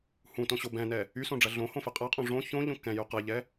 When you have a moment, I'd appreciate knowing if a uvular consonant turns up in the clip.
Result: yes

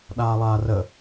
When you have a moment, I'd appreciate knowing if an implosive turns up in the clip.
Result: yes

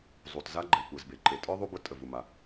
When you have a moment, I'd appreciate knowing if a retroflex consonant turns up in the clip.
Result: no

